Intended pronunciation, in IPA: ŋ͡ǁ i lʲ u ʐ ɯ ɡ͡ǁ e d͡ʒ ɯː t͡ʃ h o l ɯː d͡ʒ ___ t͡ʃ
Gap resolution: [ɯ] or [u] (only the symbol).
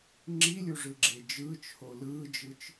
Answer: ɯ